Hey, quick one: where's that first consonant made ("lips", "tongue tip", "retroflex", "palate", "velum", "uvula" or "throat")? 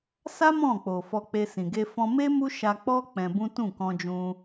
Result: tongue tip